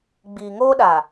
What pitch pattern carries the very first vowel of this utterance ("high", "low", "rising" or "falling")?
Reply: low